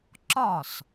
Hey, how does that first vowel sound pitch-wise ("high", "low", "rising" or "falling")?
falling